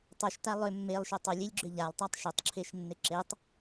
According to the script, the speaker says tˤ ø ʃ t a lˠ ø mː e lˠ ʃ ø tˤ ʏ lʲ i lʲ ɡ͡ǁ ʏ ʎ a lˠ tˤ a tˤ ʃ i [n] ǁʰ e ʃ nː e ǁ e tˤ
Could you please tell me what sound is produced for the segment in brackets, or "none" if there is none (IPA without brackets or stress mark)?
tˤ